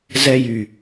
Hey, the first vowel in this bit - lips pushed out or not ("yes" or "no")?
no